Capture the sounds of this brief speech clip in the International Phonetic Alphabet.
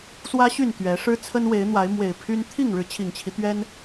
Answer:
swä˦ɕy˥˨n t̪ɥɛ˨˦ ʂɻ̩˦t͡sʰə˦nwe˨˦ɪ̯n̪wa˨˦ɪ̯ mwe˨˩ɪ̯pʰy˦n t̪ʰi˥˨ŋɻɻ̩˨˦ t͡ɕʰi˨˩ŋt͡ɕʰi˦t̪ɥɛ˦n

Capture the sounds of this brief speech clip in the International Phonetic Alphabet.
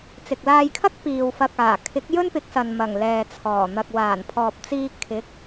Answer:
t͡sɪ˨k̚laː˧jkʰɐ˥k̚piː˨w fɐ˨k̚ aː˨˩ kʰɪ˨˥k̚jɵ˥npɪ˨˥k̚sɐ˨n mɐ˨˩ŋlɛː˨t͡sʰɔː˨˩ n̪ɐ˨k̚waː˨˩n pʰɔː˨p̚t͡siː˧ kʰɪ˨˥k̚

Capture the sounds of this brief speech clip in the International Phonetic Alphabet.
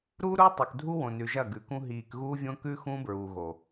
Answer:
ɾu˦ɾu˦ tˤu˨kdʱu˦wõ˨nʉ˨ ʒɐ˦˨ɡʉ˨kũ˦ ɦiː˨kɣuː˦vʲõ˦kʉ˦ xũ˦bɹu˨ɣo˨

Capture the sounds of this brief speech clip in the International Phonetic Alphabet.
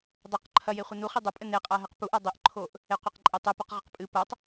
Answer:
dˤɐq ǃʰɐjeχʷɘ nuχi dˤɐpʼɘ neqʼaɦɛq puʔa dˤiʔǃʰoʔ | eqʷeqǃʼetˤɛ puqʁɘqpʼɨ pɐtˤ

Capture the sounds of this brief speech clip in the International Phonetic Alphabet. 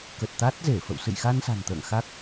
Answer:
kə˨˩t̚ t̪a˦˥t̚ze˧˩ fə̰˧˨wsɨ̰˧˨jxa˧n sa̤˨˩nt̪ə̰ː˧˨ŋxa˦˥k̚

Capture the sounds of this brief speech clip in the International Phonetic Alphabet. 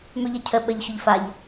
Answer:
møʎɐcʰə ɓəʎ çʊʎfaʎ

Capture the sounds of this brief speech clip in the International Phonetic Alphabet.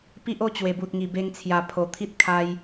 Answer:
pi˦ʔ o˦t͡ɕwe˨˩bu˨t̚ ŋi˨˩be˧ŋt͡sʰja˨˩ pʰo˨˩ t̪ʰi˦t̚kʰa˧j

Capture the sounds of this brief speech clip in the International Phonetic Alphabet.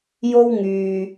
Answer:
jo˥wŋyː˨

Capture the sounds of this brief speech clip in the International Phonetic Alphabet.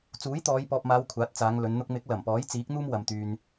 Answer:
t͡suː˨˥jt̪ɔː˨˧jpɔː˨p̚maː˨˧w kʷʰaː˨˥t̚t͡saː˨˧ŋlɵ˨˧n n̪ʊ˧k̚mɪ˨˥k̚ lɐ˨˩mpɔː˨˥jt͡siː˨˥k̚ n̪uː˥mwɐ˨mt̪yː˨n

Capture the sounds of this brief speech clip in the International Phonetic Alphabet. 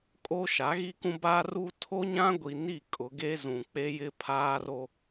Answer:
kʼo˦ʃa˨˦ ɣi˦kũ˦ ba˦ru˦ tʰo˦ɲã˦ ɡʷi˨ ni˦˨ kʼʊ˨˦ɡe˦ zũ˨ k͡pe˦jɪ˦ pʰaː˦ro˦

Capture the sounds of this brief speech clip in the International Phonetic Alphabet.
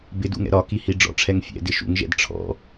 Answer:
bɪdṵŋɛ̰ ɾɒkihi ɖ͡ʐɔ̰ʈ͡ʂʰɛŋ fʲɛ̰dɪ ʃṵŋʒɛ̰d ʈ͡ʂʰɔ̰

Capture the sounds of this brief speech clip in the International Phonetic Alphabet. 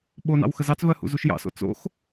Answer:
ɓonɑ̰w xəzɑt͡svɜ hṵzuʃjɑ̰so̰ t͡so̰x

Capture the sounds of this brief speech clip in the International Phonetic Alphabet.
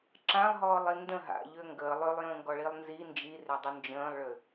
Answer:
ǁãlˠɦɔːlˠi ndə̃ ɦa̰ʎø ŋɡəː lˠølˠjə̃ːŋɡɔɭilˠ nzi nd͡ʒirødˤu nd͡ʒə̃ːlˠɭʏ

